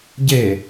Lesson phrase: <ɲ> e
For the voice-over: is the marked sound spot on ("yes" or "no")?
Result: no